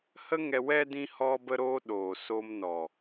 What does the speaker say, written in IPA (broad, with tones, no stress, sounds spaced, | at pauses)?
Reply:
h ə˦ ŋ ɛ˧ w ɛ˧ d ĩ˧ h ɔ˧ b ə˧ ɾ oː˧ ɗ oː˨ s o˧ m n ɔ˨